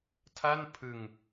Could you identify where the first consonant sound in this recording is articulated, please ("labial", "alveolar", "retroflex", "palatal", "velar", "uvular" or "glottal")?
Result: alveolar